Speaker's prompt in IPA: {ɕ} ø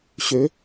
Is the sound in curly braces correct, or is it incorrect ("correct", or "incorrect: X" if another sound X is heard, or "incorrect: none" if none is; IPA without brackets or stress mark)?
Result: correct